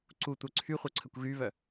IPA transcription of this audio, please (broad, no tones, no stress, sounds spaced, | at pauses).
ǀ u tʷ œ ǀʰ y χʷ œ ǀʰ ə kʷ ɣ y β œ